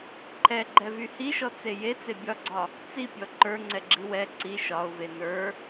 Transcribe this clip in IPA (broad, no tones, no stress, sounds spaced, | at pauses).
ǃʰ ɛ ɡ͡ǃ ɛ v y h i ʃ ɔ t͡s e j e t͡s e bʲ ɒ ɡ͡ǀ ɒ | t͡s i pʲ ɔ ǃ ə˞ ŋ͡ǀ ɛ ɡ͡ǁ i w ɛ ǀ i ʃ ɒ ʊ̯ v e n ə˞